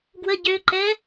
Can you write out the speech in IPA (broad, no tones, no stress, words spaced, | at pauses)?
ɡwə ɟøǃɛ